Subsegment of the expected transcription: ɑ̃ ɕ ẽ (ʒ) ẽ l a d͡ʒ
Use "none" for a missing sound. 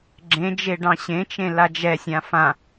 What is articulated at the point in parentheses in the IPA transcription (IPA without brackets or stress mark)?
t͡ʃ